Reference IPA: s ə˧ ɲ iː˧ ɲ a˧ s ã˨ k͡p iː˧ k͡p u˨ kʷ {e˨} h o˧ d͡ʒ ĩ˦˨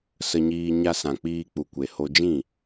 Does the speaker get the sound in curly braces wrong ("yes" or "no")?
no